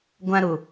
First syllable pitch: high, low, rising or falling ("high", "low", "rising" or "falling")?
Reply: high